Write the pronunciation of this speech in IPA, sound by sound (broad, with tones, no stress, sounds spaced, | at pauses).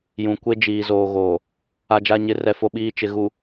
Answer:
j ũ˨ kʷ e˦ d͡ʒ iː˨ z oː˨ ɣ oː˨ | a˨ d͡ʒ a˨ ɲ ɪ˨ r ɛ˦ f o˦ ɓ iː˦ t͡ʃ ɪ˨ ɣ u˨